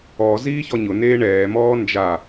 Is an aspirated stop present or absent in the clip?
absent